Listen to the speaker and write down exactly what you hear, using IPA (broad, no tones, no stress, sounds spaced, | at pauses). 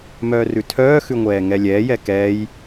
m œː r ʉ tʰ œː x ʉ ŋʷ ɛː ŋ ɛ lʲ ɛː j ɛ k ɛː j